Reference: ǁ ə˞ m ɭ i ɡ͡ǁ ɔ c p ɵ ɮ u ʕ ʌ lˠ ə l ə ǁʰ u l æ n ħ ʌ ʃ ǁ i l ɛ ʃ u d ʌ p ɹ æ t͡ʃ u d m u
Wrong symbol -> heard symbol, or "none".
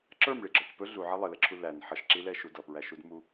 t͡ʃ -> ʃ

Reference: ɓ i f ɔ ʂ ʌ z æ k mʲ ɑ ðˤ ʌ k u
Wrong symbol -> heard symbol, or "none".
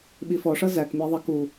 none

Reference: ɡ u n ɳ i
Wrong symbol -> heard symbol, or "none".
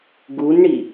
none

